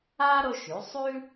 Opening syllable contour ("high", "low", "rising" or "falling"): high